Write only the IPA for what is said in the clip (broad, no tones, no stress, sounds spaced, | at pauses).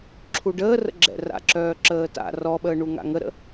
ǁʰ u ɖ əː r ə̰ ɡ͡ǁ ɛ̰ r a̰ ǁ œː ǁ əː t a̰ r ɔ ɓ əː ɳ u ŋ a̰ ŋ ə ɾ ə̰